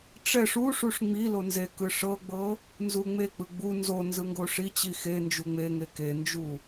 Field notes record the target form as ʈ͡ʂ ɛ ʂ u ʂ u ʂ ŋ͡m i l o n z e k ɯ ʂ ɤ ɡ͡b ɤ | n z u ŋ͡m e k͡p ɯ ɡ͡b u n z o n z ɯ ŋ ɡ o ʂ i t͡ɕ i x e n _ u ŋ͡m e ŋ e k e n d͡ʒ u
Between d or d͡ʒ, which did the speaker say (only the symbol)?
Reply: d͡ʒ